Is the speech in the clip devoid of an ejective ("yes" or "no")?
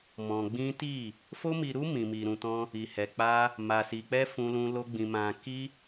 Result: yes